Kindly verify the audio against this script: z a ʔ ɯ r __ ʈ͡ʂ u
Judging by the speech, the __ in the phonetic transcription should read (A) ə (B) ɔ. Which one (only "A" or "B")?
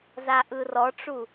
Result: B